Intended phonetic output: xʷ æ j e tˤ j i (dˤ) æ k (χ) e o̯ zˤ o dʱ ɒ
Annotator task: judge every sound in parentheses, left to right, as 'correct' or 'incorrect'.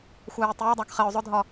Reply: correct, correct

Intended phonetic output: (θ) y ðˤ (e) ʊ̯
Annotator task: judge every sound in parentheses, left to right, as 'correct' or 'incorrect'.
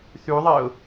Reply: correct, correct

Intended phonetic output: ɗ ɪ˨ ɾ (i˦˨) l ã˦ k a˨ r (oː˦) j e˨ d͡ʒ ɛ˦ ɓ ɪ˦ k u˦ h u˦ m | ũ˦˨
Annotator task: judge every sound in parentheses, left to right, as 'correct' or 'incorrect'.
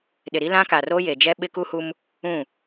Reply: incorrect, correct

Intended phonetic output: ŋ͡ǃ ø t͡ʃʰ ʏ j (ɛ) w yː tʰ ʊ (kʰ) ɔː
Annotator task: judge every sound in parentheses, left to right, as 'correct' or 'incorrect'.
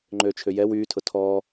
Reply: correct, incorrect

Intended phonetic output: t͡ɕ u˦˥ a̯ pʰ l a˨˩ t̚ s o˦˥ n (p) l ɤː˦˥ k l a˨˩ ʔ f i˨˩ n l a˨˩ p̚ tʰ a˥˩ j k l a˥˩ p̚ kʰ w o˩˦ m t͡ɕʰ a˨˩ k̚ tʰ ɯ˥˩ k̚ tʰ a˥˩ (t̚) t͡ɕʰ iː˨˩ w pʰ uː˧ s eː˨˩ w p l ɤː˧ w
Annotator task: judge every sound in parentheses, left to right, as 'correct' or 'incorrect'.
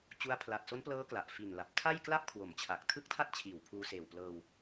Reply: correct, correct

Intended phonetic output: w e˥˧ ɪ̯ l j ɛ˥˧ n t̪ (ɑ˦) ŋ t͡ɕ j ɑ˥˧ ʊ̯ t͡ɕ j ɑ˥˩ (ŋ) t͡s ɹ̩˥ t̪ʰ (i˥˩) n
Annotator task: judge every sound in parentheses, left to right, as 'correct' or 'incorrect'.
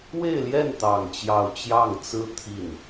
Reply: incorrect, correct, correct

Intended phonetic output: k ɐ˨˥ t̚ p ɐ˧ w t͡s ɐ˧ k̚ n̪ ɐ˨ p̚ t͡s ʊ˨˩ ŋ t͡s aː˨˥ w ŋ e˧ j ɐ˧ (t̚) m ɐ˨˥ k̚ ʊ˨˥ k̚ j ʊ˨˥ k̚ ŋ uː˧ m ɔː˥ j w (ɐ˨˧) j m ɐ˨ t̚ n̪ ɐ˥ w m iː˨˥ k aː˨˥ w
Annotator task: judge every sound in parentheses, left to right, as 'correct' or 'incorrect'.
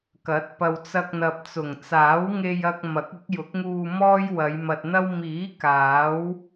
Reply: incorrect, correct

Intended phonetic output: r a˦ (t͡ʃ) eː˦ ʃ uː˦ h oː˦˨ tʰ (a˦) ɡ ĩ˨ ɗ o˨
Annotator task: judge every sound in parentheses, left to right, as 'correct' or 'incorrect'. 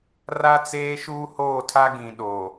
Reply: incorrect, correct

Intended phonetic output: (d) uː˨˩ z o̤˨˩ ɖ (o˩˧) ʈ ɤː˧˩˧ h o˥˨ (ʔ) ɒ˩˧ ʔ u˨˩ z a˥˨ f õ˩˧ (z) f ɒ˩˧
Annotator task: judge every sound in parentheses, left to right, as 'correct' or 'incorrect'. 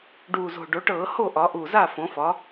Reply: incorrect, correct, correct, incorrect

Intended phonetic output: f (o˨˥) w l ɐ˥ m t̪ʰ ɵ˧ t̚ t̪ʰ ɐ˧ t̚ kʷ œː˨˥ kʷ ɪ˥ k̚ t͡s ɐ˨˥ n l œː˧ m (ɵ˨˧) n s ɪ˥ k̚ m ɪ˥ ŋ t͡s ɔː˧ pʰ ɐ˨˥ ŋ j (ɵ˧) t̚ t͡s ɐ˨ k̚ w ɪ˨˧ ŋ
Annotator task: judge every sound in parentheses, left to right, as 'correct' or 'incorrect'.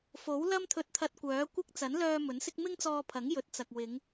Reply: correct, incorrect, incorrect

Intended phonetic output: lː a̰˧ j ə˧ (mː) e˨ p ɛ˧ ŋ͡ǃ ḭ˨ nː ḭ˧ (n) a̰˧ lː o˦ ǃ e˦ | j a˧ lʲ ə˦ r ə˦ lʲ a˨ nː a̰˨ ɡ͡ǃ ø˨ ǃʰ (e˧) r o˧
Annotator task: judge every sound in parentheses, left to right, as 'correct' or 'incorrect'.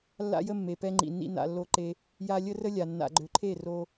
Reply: correct, correct, incorrect

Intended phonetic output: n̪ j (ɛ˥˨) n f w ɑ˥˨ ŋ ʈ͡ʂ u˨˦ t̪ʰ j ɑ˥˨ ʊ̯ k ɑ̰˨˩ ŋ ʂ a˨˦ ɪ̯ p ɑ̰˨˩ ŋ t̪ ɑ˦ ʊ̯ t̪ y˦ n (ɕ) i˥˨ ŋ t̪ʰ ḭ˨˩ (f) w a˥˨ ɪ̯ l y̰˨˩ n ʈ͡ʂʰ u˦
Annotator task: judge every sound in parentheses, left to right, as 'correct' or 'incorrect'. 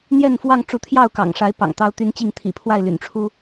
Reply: correct, incorrect, incorrect

